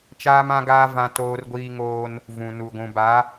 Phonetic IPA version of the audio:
t͡ʃ aː˦ m ã˦ ɡ aː˦ v ã˦ t oː˦ r ɡʷ iː˦ ŋ oː˦ n | v ũ˨ n u˨ ɡʷ ũ˨ b a˨˦

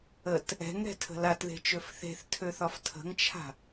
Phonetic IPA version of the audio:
ə t | ɛ̤ ŋ ɾ ɛ̤ tʰ ə̤ l a t ð e̤ t͡ʃ ø f θ e̤ θ tʰ ø θ ɒ f tʰ ə̤ ŋ t͡ʃʰ a̤

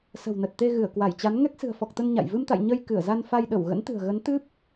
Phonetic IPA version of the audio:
s ə̤˨˩ w n ə˨˩ t̚ t̪ e˧ ɣ ɨ˧˩ ə̯ k w a˧˩ j t͡ɕ a˨˦ n ŋ ɛ˦˥ k̚ s ɨ̤˨˩ ə̯ f ɔ˨˩ k̚ t̪ ə˧ n ɲ a̰˧˨ j v ɨ˧ m t̪ a̰˧˨ j ɲ ə˧ j k ɨ˧˩ ə̯ z a˧ n f a˧ j ɗ ə˧˩ w ɣ ə̰˧˥ n t̪ ɨ̤˨˩ ə̯ ɣ ə˨˦ n t̪ ɨ˦˥ p̚

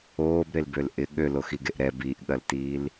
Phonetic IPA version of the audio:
oː b ɾ e l b ø l ʔ ɪ ɠ ø l o x i ɡ e ʔ ɾ ɛ b i ʔ ɠ ɐ l t iː l

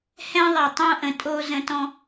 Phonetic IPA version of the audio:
h ɛ̃˦ ðˤ ɛ˨ tˤ õ˦ ʔ ə̃˨ tʼ o˦ z ə̃˦ t ɔ̃˦

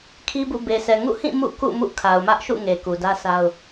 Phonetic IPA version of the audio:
kʰ i˦ b ṵ˦˨ b e˨ sʰ ɛ˨ ŋ ṵ˦˨ h ĩ˦˨ m ṵ˦˨ k ṵ˦˨ m ṵ˦˨ kʰ a˨ ʊ̯ m ä˦ ʔ ʃ ṵ˦˨ ŋ e˨ k u˨ d ä˦ sʰ a˦ ʊ̯

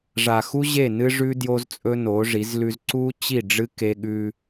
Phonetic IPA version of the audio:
ʐ a˨ x u˦ ʑ e˦˨ n ɨ˦ ʐ ʉ˦ d j o˦ z t͡sʼ ɵ˦ n o˨˦ ʐ i˨˦ z l ʉ˦ z ǀ u˦ t͡ɕ i˦˨ ɖ͡ʐ ɨ˦ k e˦ ɠ ʉ˦

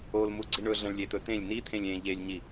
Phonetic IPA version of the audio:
o l m u ɡ͡ǀ i ɳ ɵ ɮ ɐ̃ ɭ lʲ e t̪ ɵ t ẽ lʲ n i t̪ʰ ẽ lʲ ẽ ʎ e lʲ ɲ i

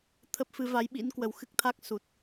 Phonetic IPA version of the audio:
t̪ʰ ə˦˥ p̚ f ɨ˨˦ v a˨˦ j ɓ ḭ˧˥ n k w ə˨˩ w x ɨ˦˥ k̚ t̪ʰ a˦˥ k̚ s u˨˩ t̚

